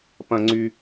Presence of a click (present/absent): present